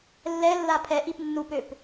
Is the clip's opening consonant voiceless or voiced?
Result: voiced